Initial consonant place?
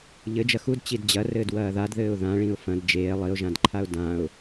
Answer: palatal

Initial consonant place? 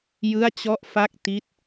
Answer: palatal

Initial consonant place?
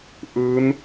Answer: glottal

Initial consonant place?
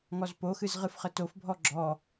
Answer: velar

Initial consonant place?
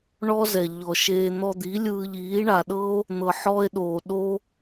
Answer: retroflex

